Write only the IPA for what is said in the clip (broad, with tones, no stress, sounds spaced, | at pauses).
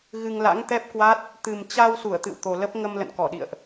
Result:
ɣ ɨ˧ ŋ l a̰˧˥ ŋ t̪ ɛ˦˥ p̚ k w a˦˥ t̚ | t̪ ɨ˨˩ m t͡ɕ a˧ w s u˧˩ ə̯ t̪ ɨ̰˧˨ w t̪ o˨˩ l ə˦˥ p̚ ŋ ə˧ m l ə̰˧˨ n k ɔ˧˩ ɗ ḭ˧˨ ə̯ ʔ